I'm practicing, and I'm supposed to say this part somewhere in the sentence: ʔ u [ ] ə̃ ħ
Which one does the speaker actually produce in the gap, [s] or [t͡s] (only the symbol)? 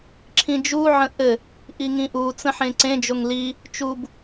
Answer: t͡s